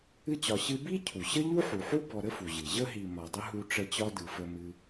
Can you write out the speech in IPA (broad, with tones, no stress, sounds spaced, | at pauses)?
ɨ˦ t͡ɕ ɒ˨ ɕ ɨ˦ b i˥ cʰ u˩ ɕ ə˥ ʎ u˥ ħ u˩ ħ u˥ b ɔ˨ ɾ ə˥ f u˩ ʑ ɨ˩ ʑ ə˦ ɦ i˨ m ɒ˨ dˤ ə˥ ɦ u˦ ʈ͡ʂ ə˦ t͡ɕ ɒ˥ d ɯ˨ f ə˦ m ɨ˥